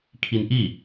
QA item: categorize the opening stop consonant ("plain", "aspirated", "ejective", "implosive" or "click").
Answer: aspirated